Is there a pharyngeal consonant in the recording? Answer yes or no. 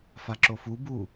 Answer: no